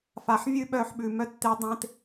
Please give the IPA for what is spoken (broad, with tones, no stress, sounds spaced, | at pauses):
f a˧ ħ vʲ ʉ˥ ɓ œ˥ ħ ɓ ʉ˧ m œ˥ tː e˥ dˤ ẽ˥ t